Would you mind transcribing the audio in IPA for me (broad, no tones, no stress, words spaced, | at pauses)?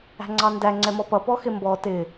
æ̤ŋ͡ǀɑndæ ŋ͡ǀɛmɔpʌ pɔxɪmbɔ tɪ